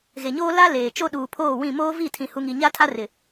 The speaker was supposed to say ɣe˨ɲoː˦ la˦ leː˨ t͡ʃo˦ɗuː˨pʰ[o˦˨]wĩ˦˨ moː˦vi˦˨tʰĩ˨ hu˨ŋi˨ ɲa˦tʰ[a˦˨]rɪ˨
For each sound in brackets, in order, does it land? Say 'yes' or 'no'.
no, no

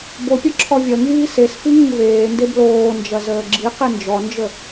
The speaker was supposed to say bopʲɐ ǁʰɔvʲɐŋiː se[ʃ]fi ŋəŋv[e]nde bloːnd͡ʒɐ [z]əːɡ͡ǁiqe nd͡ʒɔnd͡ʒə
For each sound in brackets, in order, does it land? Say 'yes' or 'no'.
no, no, yes

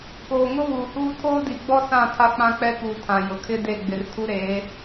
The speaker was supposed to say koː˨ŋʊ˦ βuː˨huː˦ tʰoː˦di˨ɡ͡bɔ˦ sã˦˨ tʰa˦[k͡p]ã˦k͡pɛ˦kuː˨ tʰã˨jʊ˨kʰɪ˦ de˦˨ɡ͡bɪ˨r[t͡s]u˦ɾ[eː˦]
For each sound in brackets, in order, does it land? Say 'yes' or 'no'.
yes, no, no

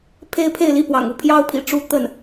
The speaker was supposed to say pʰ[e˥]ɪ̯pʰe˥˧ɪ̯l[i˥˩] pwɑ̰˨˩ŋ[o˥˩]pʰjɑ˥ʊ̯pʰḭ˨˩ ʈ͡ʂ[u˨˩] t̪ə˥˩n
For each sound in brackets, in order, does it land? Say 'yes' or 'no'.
yes, yes, no, no

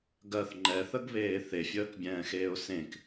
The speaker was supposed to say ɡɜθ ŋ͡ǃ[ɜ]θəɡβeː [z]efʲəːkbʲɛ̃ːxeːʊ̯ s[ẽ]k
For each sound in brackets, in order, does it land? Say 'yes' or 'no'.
no, no, yes

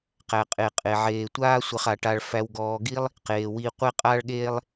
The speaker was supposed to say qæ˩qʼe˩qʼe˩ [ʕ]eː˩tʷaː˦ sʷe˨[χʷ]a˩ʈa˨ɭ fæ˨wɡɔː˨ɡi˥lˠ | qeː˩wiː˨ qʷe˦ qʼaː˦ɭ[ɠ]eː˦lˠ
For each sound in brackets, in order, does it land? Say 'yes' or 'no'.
yes, no, yes

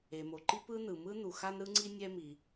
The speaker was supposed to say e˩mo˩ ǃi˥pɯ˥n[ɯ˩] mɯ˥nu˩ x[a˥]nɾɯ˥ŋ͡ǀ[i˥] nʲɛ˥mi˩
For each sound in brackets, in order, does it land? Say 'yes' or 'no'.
yes, yes, yes

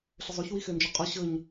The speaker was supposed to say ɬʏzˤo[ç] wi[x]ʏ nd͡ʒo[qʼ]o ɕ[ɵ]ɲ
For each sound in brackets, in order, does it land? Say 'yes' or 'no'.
yes, yes, yes, yes

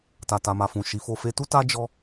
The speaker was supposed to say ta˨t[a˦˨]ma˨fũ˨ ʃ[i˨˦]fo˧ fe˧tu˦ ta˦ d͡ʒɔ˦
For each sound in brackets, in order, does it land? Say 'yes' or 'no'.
no, yes

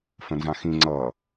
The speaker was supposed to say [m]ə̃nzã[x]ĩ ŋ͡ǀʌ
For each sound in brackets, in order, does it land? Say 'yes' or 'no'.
no, yes

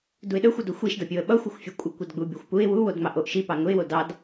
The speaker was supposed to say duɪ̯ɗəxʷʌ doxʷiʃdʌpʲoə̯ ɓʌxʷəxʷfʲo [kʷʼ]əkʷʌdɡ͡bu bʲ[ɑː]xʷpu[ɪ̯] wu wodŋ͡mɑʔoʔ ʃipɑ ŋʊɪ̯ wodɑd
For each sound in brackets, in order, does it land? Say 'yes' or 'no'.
yes, no, yes

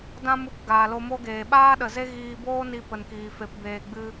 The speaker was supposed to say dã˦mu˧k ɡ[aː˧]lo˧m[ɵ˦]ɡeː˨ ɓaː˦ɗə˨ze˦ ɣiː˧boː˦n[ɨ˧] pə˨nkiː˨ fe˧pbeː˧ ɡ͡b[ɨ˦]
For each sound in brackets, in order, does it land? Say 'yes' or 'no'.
no, no, no, yes

